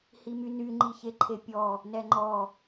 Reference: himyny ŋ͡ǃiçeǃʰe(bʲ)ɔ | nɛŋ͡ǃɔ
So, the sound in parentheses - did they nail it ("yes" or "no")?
no